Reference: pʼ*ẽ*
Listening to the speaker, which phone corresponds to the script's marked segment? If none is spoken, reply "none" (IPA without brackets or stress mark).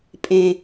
ẽ